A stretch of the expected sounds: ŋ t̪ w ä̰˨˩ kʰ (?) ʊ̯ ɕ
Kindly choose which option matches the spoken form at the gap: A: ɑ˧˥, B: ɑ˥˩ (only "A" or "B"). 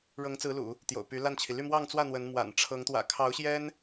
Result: A